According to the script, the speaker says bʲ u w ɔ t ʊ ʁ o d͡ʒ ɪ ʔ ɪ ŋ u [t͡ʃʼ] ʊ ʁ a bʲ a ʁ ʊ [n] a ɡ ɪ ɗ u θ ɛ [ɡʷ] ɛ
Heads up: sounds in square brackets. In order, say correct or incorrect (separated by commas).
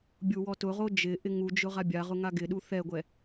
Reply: incorrect, incorrect, correct